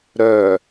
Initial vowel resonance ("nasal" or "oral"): oral